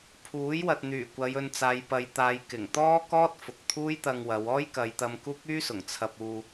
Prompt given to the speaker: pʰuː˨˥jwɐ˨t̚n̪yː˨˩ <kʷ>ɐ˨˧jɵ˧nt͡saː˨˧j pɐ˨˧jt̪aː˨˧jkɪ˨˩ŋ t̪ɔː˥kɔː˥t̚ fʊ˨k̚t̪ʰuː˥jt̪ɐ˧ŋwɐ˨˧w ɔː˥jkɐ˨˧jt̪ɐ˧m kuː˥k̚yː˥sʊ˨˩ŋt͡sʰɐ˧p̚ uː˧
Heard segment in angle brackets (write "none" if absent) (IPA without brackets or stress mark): kʷ